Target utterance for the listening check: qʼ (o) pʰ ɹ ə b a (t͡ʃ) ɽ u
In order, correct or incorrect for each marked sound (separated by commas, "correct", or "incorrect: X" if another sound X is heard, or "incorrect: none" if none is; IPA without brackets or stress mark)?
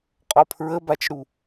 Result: incorrect: ɔ, correct